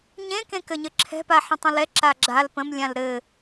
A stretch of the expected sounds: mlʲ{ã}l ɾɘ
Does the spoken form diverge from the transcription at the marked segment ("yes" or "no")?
no